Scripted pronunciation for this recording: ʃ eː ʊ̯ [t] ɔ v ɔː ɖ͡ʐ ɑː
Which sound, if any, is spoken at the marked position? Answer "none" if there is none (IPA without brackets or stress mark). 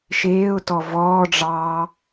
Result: t